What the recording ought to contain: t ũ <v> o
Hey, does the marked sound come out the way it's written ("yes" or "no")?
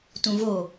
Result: yes